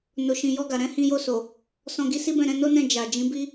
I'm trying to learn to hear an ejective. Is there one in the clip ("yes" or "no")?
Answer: no